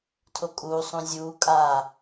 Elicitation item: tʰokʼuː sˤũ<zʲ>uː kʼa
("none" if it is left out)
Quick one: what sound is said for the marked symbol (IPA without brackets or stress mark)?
zʲ